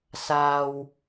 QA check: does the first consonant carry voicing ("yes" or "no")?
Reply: no